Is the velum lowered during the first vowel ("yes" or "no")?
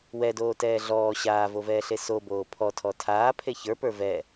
no